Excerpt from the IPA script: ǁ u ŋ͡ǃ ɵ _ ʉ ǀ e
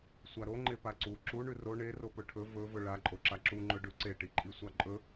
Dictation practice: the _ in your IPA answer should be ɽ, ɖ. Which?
ɖ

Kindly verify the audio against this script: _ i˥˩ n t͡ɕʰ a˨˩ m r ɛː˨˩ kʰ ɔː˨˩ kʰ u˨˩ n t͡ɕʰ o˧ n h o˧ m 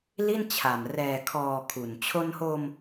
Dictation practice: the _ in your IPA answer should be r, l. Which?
l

